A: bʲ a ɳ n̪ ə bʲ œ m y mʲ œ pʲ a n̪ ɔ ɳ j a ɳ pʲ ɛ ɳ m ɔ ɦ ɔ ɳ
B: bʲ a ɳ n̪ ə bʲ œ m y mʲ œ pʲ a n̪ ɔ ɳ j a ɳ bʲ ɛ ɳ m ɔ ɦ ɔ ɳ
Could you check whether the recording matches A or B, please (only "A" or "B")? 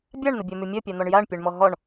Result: A